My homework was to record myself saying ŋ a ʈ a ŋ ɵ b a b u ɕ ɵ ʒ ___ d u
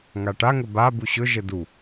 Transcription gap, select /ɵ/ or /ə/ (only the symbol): ə